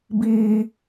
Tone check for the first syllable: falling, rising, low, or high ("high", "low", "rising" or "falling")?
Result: high